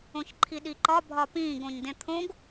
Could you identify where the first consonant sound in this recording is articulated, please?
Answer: palatal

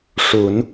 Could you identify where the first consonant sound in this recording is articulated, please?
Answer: retroflex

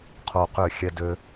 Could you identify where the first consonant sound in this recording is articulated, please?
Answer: uvular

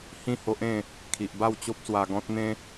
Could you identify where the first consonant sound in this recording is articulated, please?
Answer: glottal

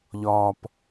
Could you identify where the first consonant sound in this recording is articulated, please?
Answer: palatal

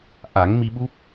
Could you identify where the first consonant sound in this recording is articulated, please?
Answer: glottal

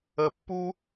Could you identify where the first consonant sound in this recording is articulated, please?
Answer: labial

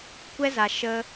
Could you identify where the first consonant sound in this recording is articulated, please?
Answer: velar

